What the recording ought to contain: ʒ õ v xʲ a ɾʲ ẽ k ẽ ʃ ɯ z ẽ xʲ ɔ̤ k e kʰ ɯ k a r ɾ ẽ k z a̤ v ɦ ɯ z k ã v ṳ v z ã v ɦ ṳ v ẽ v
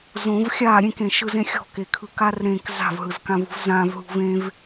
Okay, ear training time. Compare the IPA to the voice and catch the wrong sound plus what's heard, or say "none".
ʒ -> z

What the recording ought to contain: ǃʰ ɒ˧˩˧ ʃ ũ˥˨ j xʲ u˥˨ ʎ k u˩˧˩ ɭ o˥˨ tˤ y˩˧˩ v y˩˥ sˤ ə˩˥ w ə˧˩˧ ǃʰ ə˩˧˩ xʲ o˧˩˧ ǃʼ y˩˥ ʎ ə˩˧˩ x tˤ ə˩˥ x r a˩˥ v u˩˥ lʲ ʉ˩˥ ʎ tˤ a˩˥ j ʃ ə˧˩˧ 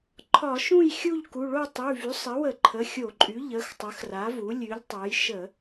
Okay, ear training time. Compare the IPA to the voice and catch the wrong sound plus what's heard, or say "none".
none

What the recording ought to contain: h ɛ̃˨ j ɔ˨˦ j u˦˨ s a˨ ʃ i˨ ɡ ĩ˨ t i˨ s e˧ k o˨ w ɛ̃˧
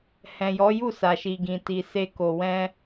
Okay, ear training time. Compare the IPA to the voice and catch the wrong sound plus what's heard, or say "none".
none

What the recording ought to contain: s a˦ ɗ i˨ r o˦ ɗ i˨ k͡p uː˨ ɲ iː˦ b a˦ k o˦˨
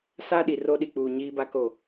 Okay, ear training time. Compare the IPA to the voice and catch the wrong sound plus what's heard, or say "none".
none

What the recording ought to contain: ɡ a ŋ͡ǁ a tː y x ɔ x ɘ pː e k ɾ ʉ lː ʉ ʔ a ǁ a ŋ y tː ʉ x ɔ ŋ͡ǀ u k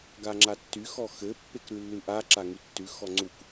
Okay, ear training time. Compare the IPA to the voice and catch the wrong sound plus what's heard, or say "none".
none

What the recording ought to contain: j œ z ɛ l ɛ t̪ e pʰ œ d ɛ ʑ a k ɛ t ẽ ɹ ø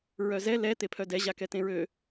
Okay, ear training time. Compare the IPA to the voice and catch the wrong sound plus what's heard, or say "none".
j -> ɹ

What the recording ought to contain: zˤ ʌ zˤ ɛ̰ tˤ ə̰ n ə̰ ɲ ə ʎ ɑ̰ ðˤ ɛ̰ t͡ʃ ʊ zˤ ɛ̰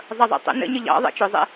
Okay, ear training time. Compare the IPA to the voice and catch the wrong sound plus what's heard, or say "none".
none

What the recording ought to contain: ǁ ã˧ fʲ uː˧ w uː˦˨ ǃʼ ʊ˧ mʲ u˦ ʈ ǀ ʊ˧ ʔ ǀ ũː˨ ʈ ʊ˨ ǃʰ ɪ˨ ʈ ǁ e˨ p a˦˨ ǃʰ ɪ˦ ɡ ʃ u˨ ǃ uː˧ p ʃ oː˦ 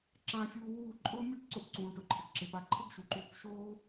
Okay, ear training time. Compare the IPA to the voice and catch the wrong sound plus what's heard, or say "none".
none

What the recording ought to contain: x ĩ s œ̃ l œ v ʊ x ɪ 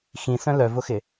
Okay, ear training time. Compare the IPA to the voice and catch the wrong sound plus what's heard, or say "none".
none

